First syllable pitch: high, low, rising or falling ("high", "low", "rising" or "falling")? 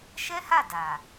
high